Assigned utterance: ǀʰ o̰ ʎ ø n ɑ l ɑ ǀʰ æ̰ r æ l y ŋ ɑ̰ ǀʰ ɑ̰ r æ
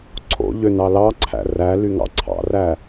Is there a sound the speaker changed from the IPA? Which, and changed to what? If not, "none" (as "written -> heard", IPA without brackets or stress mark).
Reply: none